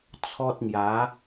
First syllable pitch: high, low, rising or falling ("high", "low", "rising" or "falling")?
high